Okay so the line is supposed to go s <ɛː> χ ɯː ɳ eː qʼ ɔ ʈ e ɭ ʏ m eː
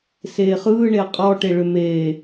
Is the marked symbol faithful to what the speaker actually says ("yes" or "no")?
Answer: no